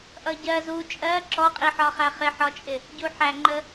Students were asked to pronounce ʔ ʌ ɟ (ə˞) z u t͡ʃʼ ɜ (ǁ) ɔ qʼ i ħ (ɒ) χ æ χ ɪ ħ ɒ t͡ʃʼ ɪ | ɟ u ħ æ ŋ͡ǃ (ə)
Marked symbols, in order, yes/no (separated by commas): no, yes, yes, yes